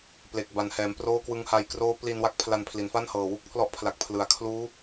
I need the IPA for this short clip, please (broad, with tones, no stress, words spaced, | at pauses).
ple˨˩k̚ ba˨˩nhɛː˩˦m proː˥˩kwɯ˦˥ŋha˧j kroː˦˥pli˧nwa˥˩k̚ pʰla˧npʰli˩˦nfa˥˩nhɤː˨˩ wu˥˩k̚pʰlɔ˦˥ʔpʰla˨˩k̚ pʰlɯ˩˦a̯kʰluː˦˥